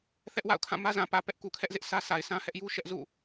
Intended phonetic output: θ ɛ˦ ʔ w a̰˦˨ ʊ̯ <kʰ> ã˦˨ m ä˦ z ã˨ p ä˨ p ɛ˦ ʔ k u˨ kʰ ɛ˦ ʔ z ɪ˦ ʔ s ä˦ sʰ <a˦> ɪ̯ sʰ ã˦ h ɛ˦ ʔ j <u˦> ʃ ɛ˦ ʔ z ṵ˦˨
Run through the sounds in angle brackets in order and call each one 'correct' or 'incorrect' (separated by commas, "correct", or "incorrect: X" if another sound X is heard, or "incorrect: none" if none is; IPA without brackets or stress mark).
correct, incorrect: a˨, correct